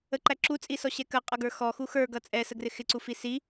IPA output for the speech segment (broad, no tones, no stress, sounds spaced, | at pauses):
ə ǃ æ ǁ u t͡sʼ i s ɔ ɕ ɛ k ə qʼ ʌ ɡ ə˞ x ɔ x u x ə˞ ɡ ʌ t͡sʼ ɛ s ə ɡ r ɪ x ɪ ǀ u f i s i